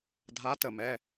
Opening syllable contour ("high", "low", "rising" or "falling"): rising